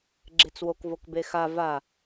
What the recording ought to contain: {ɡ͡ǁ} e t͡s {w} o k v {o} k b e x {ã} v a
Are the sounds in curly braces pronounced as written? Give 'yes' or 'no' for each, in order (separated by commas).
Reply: yes, yes, yes, no